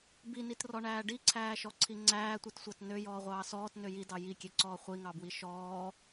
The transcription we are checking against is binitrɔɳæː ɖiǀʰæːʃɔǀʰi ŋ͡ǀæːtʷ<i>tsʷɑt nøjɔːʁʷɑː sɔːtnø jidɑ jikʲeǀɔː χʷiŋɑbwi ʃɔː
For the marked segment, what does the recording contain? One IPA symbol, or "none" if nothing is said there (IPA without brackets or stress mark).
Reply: i